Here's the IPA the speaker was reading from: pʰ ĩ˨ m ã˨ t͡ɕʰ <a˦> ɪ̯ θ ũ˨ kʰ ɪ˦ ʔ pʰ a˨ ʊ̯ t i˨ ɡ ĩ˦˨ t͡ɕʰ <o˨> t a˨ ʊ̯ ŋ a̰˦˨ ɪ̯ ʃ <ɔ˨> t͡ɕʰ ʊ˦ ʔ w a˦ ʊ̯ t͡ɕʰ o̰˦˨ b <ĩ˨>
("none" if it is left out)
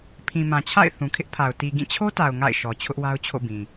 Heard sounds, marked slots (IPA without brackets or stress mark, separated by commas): a̰˦˨, o˦, ɔ˨, ĩ˨